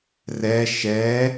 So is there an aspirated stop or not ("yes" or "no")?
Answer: no